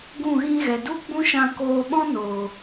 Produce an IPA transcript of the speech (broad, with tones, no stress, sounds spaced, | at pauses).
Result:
ɡ ũ˦˨ ɣ ĩ˦ ɣ ɛ˨ d u˦ ɡ͡b ũ˦ ʃ ã˧ k oː˧ ɓ ɔ̃˦ n oː˨